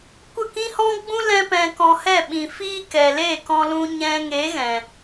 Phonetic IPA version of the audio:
kʷ ə˦˨ k ĩ˦ h ɔ̃˦ ɡ͡b ũ˦ l ɛ̃˦ p ɛ̃˧ k ɔ̃˧ h ɛ˦˨ ɓ ĩ˨ f iː˦ k ɛ˨ l e˦˨ k ɔ̃˧ l ũ˧ ɲ ɛ̃˧ ŋ e˨˦ ɣ ɛ̃˨

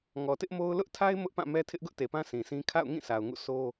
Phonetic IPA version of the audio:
ŋ ɔ˨ t ɪ˦ ʔ m o˦ ʊ̯ l ʊ˦ ʔ tʰ a˦ ɪ̯ m ʊ˦ ʔ p ã˦˨ m ɛ˦ tʰ ɪ˦ ʔ ɡ ʊ˦ ʔ t e˨ p ã˦ sʰ ĩ˨ sʰ ĩ˦ kʰ a̰˦˨ ʊ̯ ŋ ĩ˦˨ sʰ a˨ ʊ̯ ŋ ṵ˦˨ sʰ o˦

